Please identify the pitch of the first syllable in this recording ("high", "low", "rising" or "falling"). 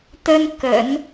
high